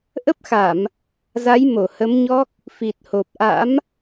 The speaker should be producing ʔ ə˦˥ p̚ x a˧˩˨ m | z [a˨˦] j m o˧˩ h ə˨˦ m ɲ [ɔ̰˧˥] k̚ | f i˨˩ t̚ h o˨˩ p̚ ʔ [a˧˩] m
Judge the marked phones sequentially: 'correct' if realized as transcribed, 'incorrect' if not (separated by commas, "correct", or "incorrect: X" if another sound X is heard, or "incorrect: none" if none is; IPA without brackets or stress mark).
correct, incorrect: ɔ˦˥, incorrect: a̰˧˥